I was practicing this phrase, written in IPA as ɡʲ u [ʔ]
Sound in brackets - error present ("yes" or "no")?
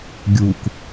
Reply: yes